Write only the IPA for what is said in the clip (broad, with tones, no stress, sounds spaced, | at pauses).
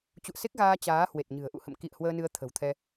t͡ɕ ṵ˧˨ ə̯ s e˦˥ k̚ ɣ aː˧ t͡ɕ aː˨˦ h w e˨˩ t̚ ɲ ɨ̤˨˩ ə̯ ʔ ṵ˧˨ h ə̰˧˨ m k ḭ˧˨ ə̯ h w əː˧ n ɨ˧ ə̯ t̪ʰ ə̤˨˩ w t̪ʰ ɛ˧